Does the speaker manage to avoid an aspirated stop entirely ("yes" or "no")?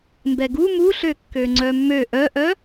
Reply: yes